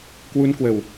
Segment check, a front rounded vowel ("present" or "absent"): absent